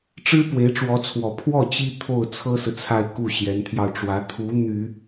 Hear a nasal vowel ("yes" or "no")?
no